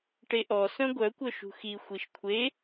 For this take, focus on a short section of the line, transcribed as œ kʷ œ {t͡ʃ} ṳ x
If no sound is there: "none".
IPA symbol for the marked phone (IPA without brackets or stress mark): ʃ